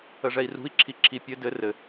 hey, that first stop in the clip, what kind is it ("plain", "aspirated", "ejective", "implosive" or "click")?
click